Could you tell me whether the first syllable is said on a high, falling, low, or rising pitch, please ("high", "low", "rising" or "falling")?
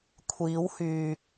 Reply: rising